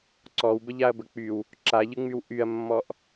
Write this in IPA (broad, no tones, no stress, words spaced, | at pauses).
ǀɔwbəʎaɐ̯bə k͡pyw | ǁaʎɯŋ͡myw ʔyɐ̯mːɔʔ